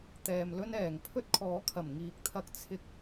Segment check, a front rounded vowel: absent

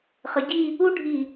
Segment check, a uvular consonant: present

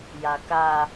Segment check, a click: absent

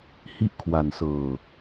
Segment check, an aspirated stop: present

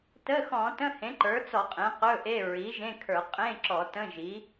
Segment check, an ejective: present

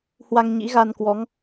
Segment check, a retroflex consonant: absent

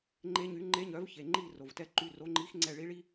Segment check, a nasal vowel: absent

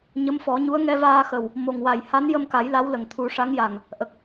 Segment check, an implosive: absent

